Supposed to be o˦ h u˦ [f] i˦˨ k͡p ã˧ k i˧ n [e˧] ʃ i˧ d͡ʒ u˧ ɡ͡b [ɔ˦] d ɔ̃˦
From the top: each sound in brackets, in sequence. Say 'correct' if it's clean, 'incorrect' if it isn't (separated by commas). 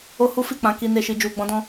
correct, correct, incorrect